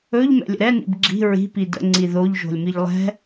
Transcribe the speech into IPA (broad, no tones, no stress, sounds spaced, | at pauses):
ɵ ʎ m ɛ̰ lʲ ə̰ ɾ ɛ n ḭ b ɡ͡ǁ i̤ ɹ i̤ p i d ə̰ ŋ͡ǀ i ð o ʎ ʒ o̤ lʲ m i ʎ lˠ ɛ̤